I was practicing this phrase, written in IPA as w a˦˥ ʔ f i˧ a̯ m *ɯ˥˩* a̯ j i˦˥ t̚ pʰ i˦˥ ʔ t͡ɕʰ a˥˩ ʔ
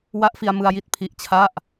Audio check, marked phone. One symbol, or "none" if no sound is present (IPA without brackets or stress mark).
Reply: ɯ˧